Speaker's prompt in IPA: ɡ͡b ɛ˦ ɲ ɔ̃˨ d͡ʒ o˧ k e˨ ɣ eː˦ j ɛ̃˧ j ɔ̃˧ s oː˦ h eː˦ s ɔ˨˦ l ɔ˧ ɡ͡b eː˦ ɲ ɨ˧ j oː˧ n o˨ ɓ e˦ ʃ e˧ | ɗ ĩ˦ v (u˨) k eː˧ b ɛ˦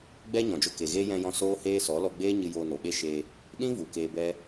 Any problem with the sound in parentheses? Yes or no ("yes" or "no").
no